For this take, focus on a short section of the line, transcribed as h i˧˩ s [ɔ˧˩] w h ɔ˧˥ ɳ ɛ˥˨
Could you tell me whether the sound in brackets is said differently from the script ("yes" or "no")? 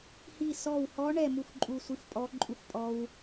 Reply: no